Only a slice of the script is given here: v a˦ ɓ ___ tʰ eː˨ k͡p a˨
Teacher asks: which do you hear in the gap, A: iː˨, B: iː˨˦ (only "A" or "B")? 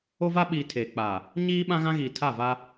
A